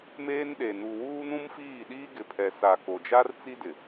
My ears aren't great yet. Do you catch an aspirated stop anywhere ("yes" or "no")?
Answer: yes